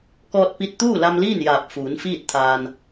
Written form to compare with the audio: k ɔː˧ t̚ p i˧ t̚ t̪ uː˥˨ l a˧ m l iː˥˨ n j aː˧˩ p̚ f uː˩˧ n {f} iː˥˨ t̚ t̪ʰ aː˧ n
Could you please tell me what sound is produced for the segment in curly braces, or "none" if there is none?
f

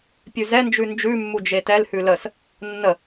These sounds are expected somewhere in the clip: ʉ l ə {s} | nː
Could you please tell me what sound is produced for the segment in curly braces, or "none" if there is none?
s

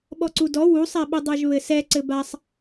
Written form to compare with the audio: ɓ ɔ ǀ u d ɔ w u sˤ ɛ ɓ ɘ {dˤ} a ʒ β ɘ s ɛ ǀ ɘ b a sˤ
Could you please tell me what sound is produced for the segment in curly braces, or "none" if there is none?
dˤ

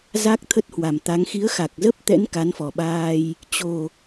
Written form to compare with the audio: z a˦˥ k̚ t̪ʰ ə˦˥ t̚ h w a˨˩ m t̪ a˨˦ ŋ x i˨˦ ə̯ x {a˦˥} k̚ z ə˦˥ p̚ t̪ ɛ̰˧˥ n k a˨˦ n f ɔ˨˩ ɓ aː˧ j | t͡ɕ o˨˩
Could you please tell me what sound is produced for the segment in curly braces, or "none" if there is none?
a˨˩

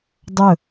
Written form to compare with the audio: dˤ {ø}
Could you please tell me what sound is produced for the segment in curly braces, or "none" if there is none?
ɵ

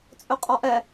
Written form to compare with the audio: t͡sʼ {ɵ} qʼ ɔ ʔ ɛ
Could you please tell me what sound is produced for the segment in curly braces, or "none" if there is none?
ɵ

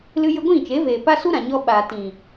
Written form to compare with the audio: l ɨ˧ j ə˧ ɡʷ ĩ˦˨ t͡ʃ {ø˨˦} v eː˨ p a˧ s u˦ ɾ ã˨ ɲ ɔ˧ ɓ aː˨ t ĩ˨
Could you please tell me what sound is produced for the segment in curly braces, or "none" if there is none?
e˨˦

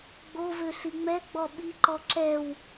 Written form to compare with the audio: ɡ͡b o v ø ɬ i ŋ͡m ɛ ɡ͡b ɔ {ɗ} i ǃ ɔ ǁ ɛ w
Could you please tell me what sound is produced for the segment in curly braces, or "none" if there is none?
ɓ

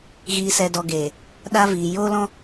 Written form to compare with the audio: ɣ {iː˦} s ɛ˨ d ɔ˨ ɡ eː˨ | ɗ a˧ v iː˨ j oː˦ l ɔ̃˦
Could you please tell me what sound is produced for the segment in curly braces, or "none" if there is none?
iː˨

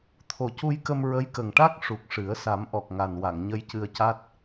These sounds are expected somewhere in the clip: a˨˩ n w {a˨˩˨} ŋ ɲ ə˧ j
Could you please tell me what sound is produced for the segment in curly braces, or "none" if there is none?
a˨˩˨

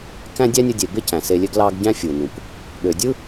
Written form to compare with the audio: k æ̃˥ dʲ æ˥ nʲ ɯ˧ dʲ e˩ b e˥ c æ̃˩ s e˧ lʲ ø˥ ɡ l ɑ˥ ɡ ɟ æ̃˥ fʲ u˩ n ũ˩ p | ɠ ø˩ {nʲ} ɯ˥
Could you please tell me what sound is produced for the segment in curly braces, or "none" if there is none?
dʲ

